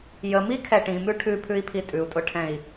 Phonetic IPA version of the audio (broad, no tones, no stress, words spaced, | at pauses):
jəmikʰɛ ʈĩmʉ ʈʰʉpʰʉi̯pʰi tʼʉu̯tʼʊʈʰɛ̃i̯